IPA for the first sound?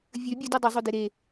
vʲ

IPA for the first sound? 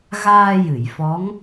ɣ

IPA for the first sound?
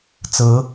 t͡s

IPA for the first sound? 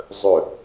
zˤ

